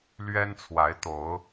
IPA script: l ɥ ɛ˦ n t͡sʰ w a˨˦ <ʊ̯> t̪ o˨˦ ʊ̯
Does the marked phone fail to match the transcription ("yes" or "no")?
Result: yes